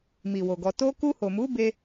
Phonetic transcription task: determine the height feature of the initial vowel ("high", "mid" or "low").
high